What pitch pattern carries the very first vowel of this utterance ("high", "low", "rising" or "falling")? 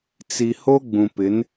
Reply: low